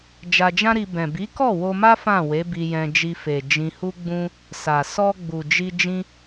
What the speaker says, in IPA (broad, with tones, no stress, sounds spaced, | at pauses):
d͡ʒ a˧ d͡ʒ ã˦ ɾ i˧ b ɛ̃˨ b i˨˦ k ɔ˦˨ w o˧ m a˦ f ã˦˨ w e˨˦ b i˧ j ɛ̃˧ d͡ʒ i˧ f e˨ d͡ʒ ĩ˧ h u˦ ɡ͡b ũ˦ | s a˨ s ɔ˧ ɡ͡b u˨ d͡ʒ i˧ d͡ʒ ĩ˧